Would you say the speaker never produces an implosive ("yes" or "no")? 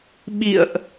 no